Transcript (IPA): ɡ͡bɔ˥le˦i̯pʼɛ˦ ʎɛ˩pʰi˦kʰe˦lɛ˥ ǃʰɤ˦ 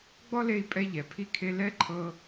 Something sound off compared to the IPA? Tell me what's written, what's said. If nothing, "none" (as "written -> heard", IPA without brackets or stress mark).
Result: none